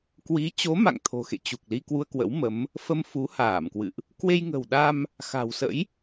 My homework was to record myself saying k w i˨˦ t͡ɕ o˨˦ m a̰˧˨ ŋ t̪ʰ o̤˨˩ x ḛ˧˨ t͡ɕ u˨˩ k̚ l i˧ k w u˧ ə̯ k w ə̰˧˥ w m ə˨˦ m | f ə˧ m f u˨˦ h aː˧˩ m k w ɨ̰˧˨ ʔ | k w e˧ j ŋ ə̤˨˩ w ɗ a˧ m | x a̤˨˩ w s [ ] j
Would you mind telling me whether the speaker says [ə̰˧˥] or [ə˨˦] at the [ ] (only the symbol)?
ə̰˧˥